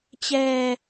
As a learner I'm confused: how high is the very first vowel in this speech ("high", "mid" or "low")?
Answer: mid